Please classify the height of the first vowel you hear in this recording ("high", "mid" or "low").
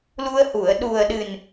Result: high